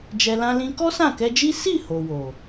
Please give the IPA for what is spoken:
d͡ʒ ɛ˨ l ã˧ l ĩ˧ k ɔ˦ s ã˦˨ k ɛ˧ d͡ʒ i˦ s i˦˨ h o˨ w o˨

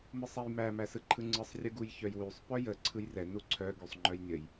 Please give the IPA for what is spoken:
m ɯ sˤ ɛ j m æ m æ s ɯ ǃʰ ɯ ŋ͡ǀ ɯ sˤ rʲ ɯ ɡ u j ç œ j w y sˤ p œ j ə ǀʰ ɯ j r ɛ n u ǀʰ œ ɡ y sˤ ŋ͡ǃ œ j nʲ ə j

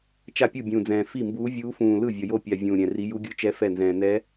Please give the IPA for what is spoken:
t͡ʃ a˥˩ pʲ u˥˩ bʲ ũː˨˩ d͡z ɛ̃ː˨˩ f i˥˩ m b uː˧˥ vʲ uː˧˥ f ũː˨˩ l ɯ˥˩ vʲ ʌ˨˩ j o˥˩ pʲ a˨˩ vʲ ũː˨˩ ɾʲ ɛ̃˨˩ r i˧˥ j u˧˥ ɡʲ ɯ˧˥ t͡ʃ ɛ˧˥ f ɛ˥˩ n z ɛ̃ː˨˩ n ɛ˧˥

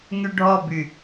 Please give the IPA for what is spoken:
ŋ y ɖʱ ɔ b y

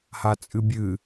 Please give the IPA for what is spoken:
h a t͡sʼ ɨ bʲ ɨ

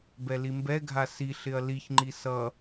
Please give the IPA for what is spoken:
b ɛ l i m b ɛ ɡʱ a s i ɬ ɪ ɐ̯ l i ç ŋ͡ǃ i s ʌ

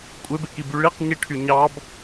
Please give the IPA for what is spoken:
kʷʼ e b e k i b y ɭ i q ɲ i ʈʰ y ɲ ɑ b

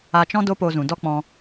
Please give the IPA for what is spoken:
a˧ t͡ʃ ɔ̃˦ d o˦ p o˧ z ũ˨ d ɔ˦ k͡p ɔ̃˧

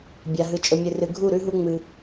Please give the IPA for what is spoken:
bʲ a˨ ɦ ɨ˨ t͡ʃʼ ɵ˨ mʲ ɨ˨ r ɨ˨ ɡʱ u˦˨ ɾ ʉ˦ ɦ u˦ ŋ͡m ɨ˦

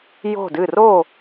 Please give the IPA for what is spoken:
j o̤˧˩ d ɨ˧˩ r o˧˩

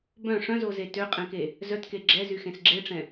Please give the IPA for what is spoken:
b œ̃ ʂ œ̃ z o z e t ø qʼ ɛ̃ k e | z œ t k e ɡ͡ǁ ɛ z y x ẽ s ɡ͡ǁ e ʈ͡ʂ ɛ̃

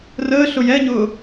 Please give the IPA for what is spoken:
r əː ɬ ʊ j ɛ ɲ ʊː

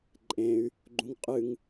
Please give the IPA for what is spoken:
ǃʼ ẽ y̯ | ɡ͡ǃ ũ ŋ qʼ ɨ ŋ

